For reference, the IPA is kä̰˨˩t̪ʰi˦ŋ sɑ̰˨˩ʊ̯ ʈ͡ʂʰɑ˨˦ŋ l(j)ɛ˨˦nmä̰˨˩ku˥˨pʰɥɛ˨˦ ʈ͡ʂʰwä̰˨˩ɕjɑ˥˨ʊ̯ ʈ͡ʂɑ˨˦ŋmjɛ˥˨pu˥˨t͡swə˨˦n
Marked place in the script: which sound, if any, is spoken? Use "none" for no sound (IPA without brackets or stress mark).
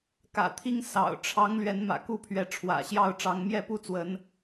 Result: ɥ